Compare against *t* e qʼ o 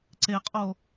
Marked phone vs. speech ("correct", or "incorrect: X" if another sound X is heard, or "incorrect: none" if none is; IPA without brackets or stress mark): incorrect: ǀ